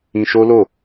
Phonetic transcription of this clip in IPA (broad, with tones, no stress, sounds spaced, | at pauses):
ĩ˧ ʃ o˦ l o˦˨